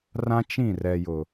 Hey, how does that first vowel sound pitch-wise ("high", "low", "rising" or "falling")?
high